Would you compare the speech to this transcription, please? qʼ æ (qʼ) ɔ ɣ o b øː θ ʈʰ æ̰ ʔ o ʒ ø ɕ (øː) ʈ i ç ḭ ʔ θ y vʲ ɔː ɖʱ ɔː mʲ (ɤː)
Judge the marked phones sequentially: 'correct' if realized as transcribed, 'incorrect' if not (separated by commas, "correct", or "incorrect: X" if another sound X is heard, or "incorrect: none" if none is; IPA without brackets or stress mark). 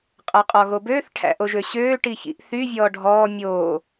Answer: correct, correct, incorrect: oː